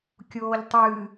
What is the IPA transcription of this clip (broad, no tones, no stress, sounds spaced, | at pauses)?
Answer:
kʲ oː ʎ tˤ ɨː